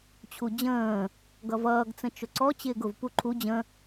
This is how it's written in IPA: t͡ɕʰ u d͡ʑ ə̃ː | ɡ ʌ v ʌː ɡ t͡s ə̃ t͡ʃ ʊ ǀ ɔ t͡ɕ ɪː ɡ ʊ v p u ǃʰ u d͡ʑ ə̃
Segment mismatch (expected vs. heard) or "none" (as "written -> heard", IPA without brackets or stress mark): none